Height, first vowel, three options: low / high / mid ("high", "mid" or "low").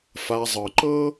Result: low